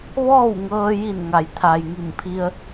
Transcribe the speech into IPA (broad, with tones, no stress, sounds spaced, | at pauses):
ʋ ɔː˥˨ w ŋ ɤː˧ j i˧˩ n ŋ a˩˧ j t̪ʰ a˩ j ŋ i˧˩ m pʰ i˧ ə̯